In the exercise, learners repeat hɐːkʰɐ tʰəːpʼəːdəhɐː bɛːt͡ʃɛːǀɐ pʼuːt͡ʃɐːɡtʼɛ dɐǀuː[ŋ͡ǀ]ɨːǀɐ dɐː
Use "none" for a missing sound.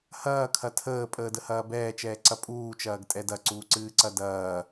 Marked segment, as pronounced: ǀ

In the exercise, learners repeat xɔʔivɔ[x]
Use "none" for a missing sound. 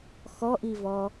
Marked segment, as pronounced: none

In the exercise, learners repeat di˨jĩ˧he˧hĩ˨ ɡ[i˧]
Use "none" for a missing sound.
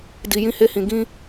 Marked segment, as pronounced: ĩ˧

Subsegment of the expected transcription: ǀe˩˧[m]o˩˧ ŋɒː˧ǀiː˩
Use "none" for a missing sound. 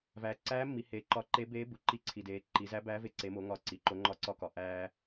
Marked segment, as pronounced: m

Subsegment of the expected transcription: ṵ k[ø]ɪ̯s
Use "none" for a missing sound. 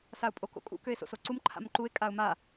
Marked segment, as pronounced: ø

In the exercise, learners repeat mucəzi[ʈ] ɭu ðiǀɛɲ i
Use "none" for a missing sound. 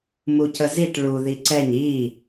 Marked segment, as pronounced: ʈ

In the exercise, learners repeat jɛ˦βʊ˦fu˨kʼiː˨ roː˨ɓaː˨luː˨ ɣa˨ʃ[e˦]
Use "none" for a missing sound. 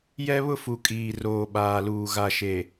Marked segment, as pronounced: e˨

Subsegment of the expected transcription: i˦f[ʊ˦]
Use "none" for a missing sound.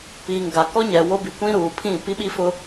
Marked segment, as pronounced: ʊ˦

